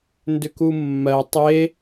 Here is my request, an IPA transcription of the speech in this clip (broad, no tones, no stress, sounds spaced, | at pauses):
n d ʏ k u mː ɜ tˤ e